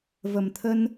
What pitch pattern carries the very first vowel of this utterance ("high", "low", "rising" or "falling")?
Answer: low